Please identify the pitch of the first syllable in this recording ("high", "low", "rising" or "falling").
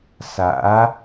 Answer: rising